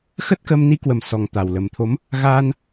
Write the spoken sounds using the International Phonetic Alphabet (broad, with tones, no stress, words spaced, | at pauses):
xə˦˥t̚kə˧m ni˨˦kwə˨˩m sɔ˨˩ŋ t̪a˨˩wlə˨˩mt̪ʰo˨˦m | ɣaː˧n